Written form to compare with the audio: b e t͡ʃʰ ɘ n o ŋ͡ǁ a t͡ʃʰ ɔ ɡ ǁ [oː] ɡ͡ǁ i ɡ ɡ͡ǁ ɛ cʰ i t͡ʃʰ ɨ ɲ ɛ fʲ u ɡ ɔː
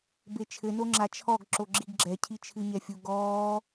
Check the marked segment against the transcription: incorrect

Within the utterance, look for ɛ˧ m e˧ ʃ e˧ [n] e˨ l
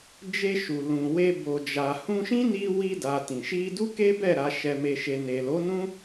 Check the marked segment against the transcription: correct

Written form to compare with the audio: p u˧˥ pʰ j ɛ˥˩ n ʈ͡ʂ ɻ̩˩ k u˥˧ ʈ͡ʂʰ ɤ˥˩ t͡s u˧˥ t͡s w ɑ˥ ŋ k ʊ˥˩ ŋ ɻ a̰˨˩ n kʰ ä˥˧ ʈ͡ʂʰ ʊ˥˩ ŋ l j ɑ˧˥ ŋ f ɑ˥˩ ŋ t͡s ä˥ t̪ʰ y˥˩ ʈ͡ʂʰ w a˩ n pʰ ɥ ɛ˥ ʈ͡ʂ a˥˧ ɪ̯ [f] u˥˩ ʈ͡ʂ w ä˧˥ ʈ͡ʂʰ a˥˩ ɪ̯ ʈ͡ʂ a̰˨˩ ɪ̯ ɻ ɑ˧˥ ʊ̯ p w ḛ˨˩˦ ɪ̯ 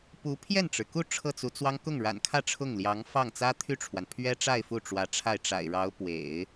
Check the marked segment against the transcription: correct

